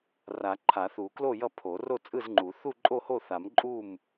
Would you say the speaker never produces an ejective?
no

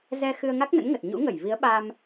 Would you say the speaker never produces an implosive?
no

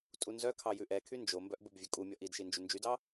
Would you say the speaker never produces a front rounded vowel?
no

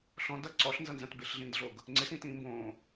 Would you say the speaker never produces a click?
no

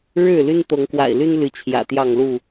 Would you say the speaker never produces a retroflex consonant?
no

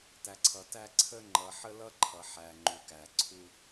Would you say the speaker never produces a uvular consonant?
yes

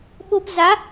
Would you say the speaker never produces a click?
yes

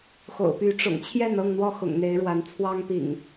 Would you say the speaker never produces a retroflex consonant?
no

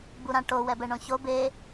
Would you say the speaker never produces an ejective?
yes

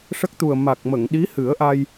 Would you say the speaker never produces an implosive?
no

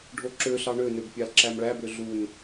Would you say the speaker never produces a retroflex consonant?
no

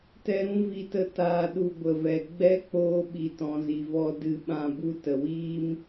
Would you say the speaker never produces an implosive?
no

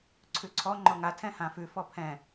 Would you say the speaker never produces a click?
no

